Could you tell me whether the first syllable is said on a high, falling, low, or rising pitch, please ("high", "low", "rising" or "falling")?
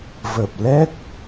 low